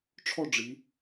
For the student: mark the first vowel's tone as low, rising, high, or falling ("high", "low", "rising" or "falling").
falling